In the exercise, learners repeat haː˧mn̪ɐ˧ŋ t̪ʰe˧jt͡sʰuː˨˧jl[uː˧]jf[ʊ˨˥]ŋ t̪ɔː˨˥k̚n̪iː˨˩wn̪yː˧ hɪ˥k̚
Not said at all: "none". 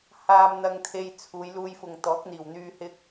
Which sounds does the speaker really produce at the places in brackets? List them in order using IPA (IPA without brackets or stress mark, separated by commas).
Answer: uː˧, ʊ˨